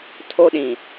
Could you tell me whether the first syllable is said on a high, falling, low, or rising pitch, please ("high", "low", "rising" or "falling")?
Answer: high